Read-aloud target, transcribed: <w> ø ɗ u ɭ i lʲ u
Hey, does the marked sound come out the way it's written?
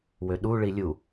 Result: yes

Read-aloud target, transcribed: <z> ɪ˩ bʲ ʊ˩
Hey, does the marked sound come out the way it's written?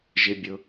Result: no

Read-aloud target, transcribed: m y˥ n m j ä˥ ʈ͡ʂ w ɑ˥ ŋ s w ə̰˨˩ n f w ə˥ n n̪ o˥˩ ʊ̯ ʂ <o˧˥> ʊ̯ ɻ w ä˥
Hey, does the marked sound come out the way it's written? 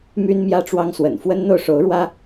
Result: yes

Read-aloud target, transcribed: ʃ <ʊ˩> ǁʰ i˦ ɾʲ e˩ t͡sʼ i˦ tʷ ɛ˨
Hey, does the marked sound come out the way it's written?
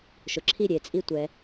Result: yes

